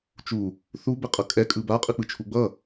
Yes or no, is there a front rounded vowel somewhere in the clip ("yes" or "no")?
no